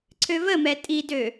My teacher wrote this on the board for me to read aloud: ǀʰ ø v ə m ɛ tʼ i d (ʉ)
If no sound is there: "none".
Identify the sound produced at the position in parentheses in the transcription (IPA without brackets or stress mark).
ø